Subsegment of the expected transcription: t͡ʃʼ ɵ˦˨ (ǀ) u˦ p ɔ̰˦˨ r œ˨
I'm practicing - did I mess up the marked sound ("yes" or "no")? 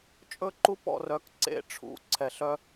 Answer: yes